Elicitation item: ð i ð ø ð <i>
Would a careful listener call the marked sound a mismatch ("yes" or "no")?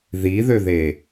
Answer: yes